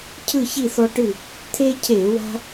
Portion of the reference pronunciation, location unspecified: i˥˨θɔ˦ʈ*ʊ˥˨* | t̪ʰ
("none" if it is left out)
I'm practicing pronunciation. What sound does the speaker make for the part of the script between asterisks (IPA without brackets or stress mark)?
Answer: ɯ˥˨